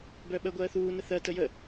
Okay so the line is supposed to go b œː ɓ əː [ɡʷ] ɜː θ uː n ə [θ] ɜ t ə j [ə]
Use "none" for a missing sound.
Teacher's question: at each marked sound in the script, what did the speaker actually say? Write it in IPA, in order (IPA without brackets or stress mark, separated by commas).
ɡʷ, θ, ə